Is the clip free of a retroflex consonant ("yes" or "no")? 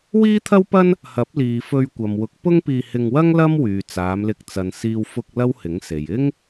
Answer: yes